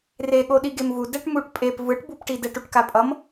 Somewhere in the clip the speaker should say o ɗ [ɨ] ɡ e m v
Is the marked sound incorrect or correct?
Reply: incorrect